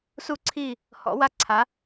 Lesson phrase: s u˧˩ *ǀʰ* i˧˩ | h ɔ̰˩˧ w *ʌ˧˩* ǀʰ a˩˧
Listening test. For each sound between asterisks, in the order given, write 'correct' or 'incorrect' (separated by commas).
correct, incorrect